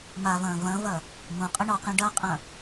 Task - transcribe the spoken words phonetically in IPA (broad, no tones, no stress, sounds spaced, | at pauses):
m a v ɐ̃ː v ɐ̃ v ɐ | m ũ qʼ ə ɳ ɔ q ẽ ɖ ɐ qʼ ɐ̃